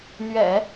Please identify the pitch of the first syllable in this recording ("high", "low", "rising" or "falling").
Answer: low